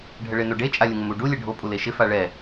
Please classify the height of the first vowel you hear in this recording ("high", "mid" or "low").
mid